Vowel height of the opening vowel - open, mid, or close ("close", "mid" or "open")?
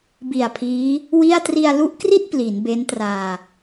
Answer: close